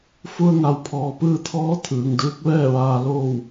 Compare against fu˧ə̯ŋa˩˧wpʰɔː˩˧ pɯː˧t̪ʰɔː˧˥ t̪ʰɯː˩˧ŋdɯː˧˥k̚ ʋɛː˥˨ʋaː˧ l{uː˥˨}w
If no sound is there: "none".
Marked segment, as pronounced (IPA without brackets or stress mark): oː˥˨